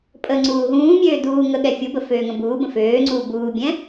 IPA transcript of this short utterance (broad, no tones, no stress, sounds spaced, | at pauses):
pʼ ə ŋ͡ǀ uː ɦ ũː mʲ øː d uː ŋ ə ɠ ɛ fʲ u b ə f øː ŋ ə̃ b uː b ə̃ f øː ŋ͡ǀ uː b uː bʲ ɛ̃